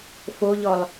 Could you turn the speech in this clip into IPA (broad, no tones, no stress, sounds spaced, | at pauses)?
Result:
f o ʎ ɔ lˠ